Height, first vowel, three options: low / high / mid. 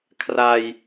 low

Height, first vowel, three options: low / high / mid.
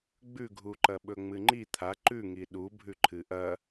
high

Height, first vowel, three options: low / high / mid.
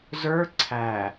mid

